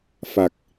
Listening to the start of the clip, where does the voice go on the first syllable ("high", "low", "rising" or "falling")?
low